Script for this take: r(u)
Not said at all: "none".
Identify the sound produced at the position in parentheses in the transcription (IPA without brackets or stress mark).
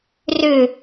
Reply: ʏ